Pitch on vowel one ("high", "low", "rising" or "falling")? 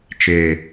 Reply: low